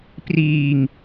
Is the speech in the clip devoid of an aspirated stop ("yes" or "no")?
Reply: yes